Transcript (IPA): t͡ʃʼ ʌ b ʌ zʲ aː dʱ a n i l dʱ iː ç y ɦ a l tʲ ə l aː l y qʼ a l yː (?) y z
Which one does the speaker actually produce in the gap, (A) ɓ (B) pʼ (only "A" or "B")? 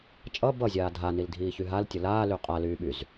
A